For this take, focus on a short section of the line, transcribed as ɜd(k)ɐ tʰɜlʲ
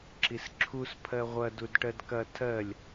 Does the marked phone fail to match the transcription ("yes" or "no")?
no